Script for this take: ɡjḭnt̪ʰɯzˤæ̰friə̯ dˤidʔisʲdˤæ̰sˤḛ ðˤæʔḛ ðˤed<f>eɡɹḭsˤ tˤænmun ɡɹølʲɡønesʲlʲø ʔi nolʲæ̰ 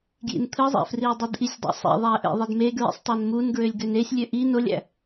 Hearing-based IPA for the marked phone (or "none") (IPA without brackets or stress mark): m